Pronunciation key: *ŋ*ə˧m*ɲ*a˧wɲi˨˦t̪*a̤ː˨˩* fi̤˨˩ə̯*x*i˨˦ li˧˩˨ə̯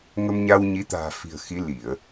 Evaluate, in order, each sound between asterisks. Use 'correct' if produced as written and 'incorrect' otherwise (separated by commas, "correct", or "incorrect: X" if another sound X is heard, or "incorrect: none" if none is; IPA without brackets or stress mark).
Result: correct, correct, correct, correct